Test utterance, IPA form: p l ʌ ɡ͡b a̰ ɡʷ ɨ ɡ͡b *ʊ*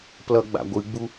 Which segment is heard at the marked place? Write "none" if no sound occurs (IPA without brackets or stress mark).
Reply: u